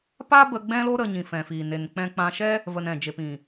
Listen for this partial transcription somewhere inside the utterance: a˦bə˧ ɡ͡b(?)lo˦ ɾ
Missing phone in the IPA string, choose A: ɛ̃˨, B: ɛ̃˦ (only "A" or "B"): B